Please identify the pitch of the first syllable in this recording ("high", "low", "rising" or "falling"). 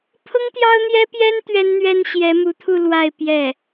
high